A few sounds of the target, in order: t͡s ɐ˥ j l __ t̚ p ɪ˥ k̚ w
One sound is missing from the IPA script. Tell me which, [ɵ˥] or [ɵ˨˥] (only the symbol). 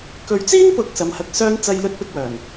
ɵ˥